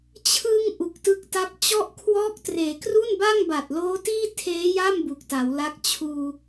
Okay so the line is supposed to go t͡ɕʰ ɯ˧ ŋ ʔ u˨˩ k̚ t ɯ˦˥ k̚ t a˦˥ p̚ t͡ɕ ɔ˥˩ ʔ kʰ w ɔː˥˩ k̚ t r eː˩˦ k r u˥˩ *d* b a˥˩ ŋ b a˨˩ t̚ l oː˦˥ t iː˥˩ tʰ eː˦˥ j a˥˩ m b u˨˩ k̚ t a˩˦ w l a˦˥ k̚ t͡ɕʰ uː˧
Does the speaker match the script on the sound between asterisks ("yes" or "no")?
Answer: no